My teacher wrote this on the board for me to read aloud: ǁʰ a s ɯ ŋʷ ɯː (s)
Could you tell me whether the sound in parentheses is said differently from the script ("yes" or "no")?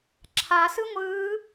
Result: yes